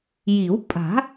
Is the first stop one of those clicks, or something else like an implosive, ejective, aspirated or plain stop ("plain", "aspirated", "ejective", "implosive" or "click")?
ejective